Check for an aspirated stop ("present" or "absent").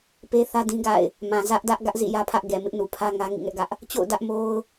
present